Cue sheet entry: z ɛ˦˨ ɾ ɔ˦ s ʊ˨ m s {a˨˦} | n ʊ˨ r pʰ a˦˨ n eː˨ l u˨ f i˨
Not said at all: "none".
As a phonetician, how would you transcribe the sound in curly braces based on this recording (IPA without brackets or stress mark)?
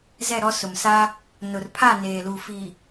a˦